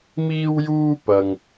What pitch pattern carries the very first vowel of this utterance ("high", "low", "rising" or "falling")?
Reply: high